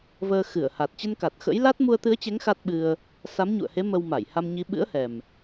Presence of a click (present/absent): absent